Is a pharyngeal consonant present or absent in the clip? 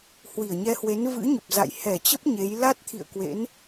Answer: absent